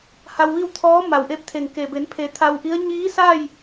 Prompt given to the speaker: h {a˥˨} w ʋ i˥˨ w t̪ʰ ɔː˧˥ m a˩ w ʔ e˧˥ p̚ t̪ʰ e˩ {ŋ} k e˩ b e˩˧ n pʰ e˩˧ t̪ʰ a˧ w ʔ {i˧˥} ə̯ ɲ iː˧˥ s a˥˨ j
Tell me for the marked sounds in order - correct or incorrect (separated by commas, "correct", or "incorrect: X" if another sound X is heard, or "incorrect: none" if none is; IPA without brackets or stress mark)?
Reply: incorrect: a˧, correct, correct